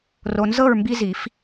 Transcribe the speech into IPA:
r o˨ n z ɤ˥˨ ɹ m b i˦ z i˨˩˦ f

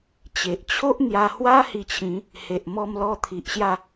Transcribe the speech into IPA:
t͡ɕ e˨ ʔ t͡ɕʰ o˦ ʔ n̪ j a˧ h w a˦ h i˧ t͡ɕʰ ĩ˨˦ | h e˨ ʔ m ɔ˧ m l ɔ˧ t̪ʰ i˨ ʔ ɕ j a˥˧

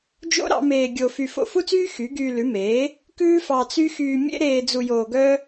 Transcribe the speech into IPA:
d͡ʒ o̰˥ ɾ ɑ̰˩˥ m eː˧ ɡʲ o˧ f y˧ f o̰˧ f u˥ t͡s yː˥ x y˩˥ ɡ yː˧ l ʉ˩˥ m eː˩˥ | k ʉː˥ f ɑ˧ t͡s y˥ x yː˧ mʲ ḛ˥ ɾ eː˧ d͡z u˧ j oː˧ ɡ œ˥

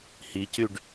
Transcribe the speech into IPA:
h i c y ɖ

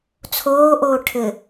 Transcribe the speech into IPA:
t͡sʰ oː ʔ oː ʈʰ ɘ

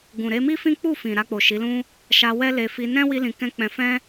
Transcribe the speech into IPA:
ɡ ũ˨ ɾ e˧ m i˦ f ĩ˦ k͡p u˦˨ f ĩ˨ ɾ a˧ k͡p o˨ ʃ i˨˦ l ũ˦ | ʃ a˧ w ɛ˦ l e˧ f i˧ n ɛ̃˦ w i˦ l ĩ˧ k ɛ̃˦ k͡p ɛ̃˧ f ɛ̃˦

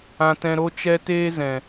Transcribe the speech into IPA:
ã˦ t ɛ̃˦ ɾ o˦ t͡ʃ ɛ˦ t eː˦ z ɛ̃˨

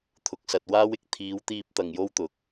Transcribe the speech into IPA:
t̪ʰ ʊ˨ k̚ s ɐ˨ t̚ w aː˥ w ɪ˥ k̚ t̪ʰ iː˨˥ w t̪ iː˧ p̚ t̪ ɐ˨ ŋ j o˥ w t̪ ʊ˨ k̚

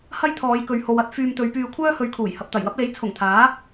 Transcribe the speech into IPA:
h ɐ˥ j t̪ʰ ɔː˨˧ j k ɵ˨ ɥ h o˧ w ɐ˥ t̚ f yː˧ m t̪ ɵ˨˧ ɥ p yː˧ kʷʰ œː˥ h ɵ˨˧ ɥ kʰ uː˨˩ j h ɐ˨ p̚ t̪ ɐ˨˩ j w ɐ˥ p̚ l e˨˥ j t͡sʰ ʊ˨˩ ŋ t̪ʰ aː˨˥

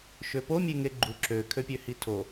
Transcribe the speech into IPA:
ʃ ø p o mʲ e ŋ e ɡ͡ǃ u ǁ ø kʰ ø pʲ ø h i tʰ o

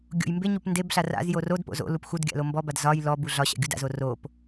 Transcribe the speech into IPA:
ɡʲ o̰ j m b e ɲ u p n d e b ɬ a r a̰ z j o r o d p o̰ z o̰ l u p x u d ɡʲ a̰ l o m b ɔ b a d z ɒ j l ɔ b u ɮ ɒ ɕ a̰ ɡʲ u d a̰ z o r o p

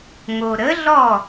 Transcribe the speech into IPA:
ŋ o˩ ɾ ə˩˥ ɮ ɔ˥˩

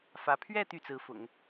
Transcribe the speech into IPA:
f ä˧˥ pʰ ɥ ɛ˥˧ t̪ y˥˩ t͡s ɹ̩˧˥ f ʊ̰˨˩˦ ŋ

